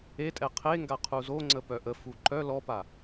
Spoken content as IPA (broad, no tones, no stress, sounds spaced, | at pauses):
e tʼ ɛ qʰ e ŋ ɡ a qʰ u z o ŋ͡ǀ ə p œ ʔ ə f u ǃ œ l ɔ p a